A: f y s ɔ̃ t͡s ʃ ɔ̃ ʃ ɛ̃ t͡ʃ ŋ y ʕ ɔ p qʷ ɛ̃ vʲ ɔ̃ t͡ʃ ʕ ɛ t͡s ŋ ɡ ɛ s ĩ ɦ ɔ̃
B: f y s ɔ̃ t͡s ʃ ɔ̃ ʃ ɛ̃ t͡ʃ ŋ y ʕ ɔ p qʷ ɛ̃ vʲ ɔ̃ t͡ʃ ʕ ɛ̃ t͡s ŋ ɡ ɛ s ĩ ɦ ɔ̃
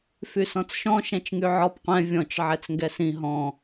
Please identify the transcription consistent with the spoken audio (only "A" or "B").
A